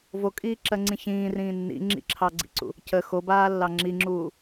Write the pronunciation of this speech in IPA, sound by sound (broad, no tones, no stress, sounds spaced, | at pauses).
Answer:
v o kʼ iː ǁ ɜ ŋ͡ǀ ĩ ç ĩː r ĩː nː ḭ ŋ͡ǁ ḭ ǁʰ ɑ ɡ͡ǀ ḭ ǀ ṵ | c ə x o b aː lː ɑ ŋ͡ǁ i ŋ͡ǁ uː